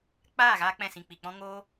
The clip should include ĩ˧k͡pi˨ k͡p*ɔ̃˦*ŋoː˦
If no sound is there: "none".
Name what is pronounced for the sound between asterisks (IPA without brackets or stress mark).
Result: ɔ̃˦